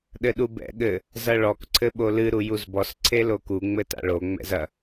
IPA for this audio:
ɗ ɘ ɗ u b ɛ̰ ɠ ɘ | z ɐ ɭ ɔ k ǀʰ ɘ ɓ o l ɨ ɾ u j u z b ɔ s ǀʰ e l o k u ŋ͡m ɘ t a̰ ɭ o ŋ͡m ɛ̰ z ɐ

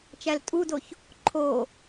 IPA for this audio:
t͡ʃ æ l tʼ u d o ç | ǃʰ o

